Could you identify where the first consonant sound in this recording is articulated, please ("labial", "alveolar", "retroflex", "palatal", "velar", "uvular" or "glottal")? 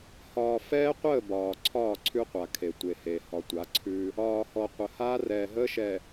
glottal